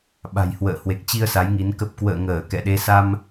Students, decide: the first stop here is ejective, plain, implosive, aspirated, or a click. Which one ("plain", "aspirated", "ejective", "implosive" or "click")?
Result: implosive